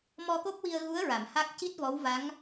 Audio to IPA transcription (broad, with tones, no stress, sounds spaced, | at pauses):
m ɔ˧ k o˦˥ p̚ w i˧ ə̯ ɣ u˧˥ ə̯ ɹ a˨˩˨ m h a˦˥ k̚ c i˦˥ t̚ v ɔ˧˥ w v a˧˥ ŋ